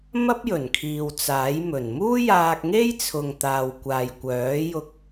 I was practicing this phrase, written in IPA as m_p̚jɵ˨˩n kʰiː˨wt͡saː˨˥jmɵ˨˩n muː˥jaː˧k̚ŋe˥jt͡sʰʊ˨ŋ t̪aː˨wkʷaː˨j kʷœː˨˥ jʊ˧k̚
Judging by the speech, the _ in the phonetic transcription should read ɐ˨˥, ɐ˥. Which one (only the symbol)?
ɐ˥